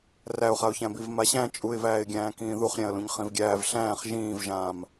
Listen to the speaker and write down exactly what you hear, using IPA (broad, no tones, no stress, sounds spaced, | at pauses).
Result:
r æ ʊ̯ χ a ʊ̯ ç æ̃ b i v m a ɕ æ̃ t͡ʃʼ u ɪ̯ v æː ɪ̯ ɡʲ æ̃ː k ĩː ð u χ ɾʲ æ̃ ə̯ l ũ ɲ χ ĩ v ɡʲ æː v ɬ æ̃ː χ ʒ ĩː v ʒ ãː m